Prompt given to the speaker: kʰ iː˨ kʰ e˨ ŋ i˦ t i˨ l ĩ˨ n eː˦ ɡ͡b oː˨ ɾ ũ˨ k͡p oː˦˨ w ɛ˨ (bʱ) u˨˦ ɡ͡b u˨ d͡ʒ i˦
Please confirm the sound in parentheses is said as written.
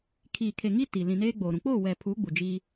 no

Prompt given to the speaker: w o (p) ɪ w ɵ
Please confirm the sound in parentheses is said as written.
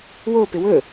yes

